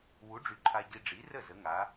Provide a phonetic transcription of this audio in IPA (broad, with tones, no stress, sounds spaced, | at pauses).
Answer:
w u˨˥ ɖ͡ʐ y˨˥ ǃʰ a˧ ɟ i˧ ɖ͡ʐ i˨˥ r ə˥˩ z ə˨˥ ŋ a˨˥